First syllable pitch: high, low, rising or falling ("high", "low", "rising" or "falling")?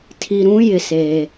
low